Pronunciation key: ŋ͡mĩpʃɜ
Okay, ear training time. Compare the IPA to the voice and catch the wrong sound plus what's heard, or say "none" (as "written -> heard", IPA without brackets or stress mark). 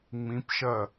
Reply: none